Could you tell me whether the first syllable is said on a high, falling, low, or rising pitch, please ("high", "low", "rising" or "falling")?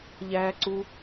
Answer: high